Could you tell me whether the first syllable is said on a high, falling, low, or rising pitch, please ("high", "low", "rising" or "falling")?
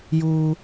low